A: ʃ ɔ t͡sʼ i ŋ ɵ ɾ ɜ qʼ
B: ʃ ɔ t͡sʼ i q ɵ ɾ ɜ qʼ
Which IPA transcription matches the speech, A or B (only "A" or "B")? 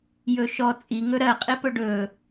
A